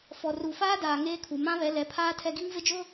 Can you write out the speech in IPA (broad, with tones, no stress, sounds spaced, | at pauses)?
f ɔ˨ r u˨ f aː˦ d aː˨ ŋ eː˦ kʰ u˨ m ã˦ β ɛ˨˦ l ɛ˨˦ pʰ aː˦ tʰ ɛ˦ ɡ i˦ ŋ v ɪ˦ d͡ʒ ʊ˦